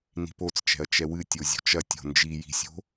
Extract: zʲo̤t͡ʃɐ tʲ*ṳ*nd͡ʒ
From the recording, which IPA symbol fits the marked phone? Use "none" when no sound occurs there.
o̤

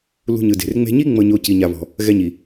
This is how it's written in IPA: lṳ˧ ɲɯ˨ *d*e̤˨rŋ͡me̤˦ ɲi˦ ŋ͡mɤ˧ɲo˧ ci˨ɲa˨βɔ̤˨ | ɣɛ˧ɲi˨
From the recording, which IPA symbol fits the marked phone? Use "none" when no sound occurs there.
d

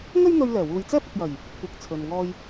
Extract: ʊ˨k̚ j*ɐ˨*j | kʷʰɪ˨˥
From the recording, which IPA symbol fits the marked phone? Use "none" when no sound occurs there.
ɐ˨˩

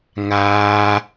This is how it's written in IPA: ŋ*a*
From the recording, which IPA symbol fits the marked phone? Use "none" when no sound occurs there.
aː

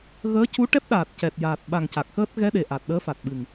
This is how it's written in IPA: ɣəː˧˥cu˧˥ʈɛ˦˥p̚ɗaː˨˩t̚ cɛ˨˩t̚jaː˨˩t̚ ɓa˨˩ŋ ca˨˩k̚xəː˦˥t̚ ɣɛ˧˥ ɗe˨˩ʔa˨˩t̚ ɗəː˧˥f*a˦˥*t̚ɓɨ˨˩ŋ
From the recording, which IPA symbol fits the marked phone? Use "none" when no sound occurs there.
a˨˩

